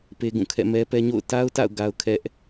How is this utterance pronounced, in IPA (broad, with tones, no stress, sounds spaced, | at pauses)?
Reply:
p e˦ ɡ ũ˦˨ kʰ ɛ̰˦˨ m ɛ˦ p ɛ˦ ɲ o̰˦˨ ʊ̯ t a˦ ʊ̯ t a̰˦˨ ʊ̯ ɡ a˦ ʊ̯ kʰ ɛ˦ ʔ